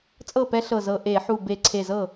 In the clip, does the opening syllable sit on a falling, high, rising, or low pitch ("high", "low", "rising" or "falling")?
falling